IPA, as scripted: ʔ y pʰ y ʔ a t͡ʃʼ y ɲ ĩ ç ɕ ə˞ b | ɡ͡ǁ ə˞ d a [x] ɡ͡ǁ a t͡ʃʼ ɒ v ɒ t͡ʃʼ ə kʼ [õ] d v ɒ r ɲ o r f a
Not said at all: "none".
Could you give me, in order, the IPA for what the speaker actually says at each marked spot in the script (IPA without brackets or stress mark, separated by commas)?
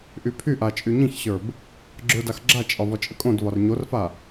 x, õ